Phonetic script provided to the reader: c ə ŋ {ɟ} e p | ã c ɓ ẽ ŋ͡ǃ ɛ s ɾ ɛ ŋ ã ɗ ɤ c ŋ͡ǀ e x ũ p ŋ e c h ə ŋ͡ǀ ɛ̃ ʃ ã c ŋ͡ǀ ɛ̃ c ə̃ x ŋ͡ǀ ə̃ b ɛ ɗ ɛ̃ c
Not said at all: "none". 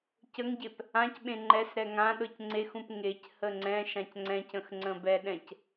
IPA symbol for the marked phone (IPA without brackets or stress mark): ɟ